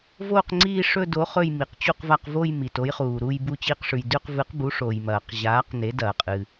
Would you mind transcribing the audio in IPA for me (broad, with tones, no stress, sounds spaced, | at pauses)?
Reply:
v oː˦˨ q ŋ͡ǀ iː˦˨ ʂ ɵ˦˨ d o˩˥ χ ɵ˦˨ j m i˩ q t͡ɕ u˦˨ q v a˦˨ q v o˦˨ j m i˩ t o˩˥ j χ uː˩ ɾ u˦˨ j b u˦˨ t͡ɕ i˦˨ q ʂ ʉ˩ j d ʉ˦˨ q v ɨ˩˥ q b u˩˥ ʂ oː˩ j m ɐː˩ q ʑ aː˩˥ q n e˩˥ d ɐː˩ qʼ ɨ˩